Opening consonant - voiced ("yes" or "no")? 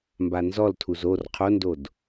yes